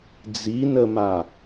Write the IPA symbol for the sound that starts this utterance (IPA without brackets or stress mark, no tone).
d͡z